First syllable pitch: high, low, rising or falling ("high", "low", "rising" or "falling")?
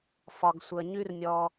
low